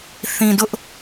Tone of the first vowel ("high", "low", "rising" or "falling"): low